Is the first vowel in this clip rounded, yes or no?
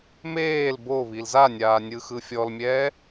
no